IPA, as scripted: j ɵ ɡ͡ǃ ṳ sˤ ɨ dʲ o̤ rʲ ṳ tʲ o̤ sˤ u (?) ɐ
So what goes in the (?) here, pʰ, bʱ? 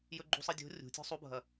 bʱ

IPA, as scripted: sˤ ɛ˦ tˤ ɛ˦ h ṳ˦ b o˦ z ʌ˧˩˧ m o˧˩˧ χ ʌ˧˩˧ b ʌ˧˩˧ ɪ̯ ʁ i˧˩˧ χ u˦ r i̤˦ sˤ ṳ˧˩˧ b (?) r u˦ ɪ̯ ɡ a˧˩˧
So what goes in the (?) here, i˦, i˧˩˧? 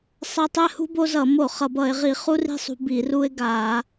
i˧˩˧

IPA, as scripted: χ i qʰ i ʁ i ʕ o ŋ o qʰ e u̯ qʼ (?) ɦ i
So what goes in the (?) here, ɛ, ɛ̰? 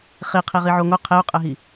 ɛ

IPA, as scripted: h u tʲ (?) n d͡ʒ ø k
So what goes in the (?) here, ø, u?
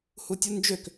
u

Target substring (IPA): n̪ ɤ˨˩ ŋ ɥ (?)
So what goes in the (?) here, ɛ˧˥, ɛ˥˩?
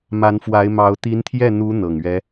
ɛ˧˥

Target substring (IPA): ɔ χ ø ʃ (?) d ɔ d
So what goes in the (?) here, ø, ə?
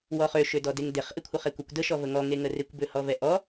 ø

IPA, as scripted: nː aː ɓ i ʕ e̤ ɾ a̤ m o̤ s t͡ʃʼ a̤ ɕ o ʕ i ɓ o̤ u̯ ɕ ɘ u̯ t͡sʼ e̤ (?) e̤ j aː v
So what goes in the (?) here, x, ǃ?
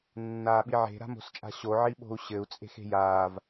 x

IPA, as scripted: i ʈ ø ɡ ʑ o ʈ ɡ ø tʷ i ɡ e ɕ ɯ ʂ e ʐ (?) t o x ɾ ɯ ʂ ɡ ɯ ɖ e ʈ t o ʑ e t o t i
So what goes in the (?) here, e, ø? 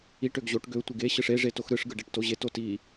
e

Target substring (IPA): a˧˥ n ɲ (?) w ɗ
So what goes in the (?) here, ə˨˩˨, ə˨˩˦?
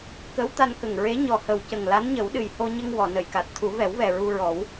ə˨˩˦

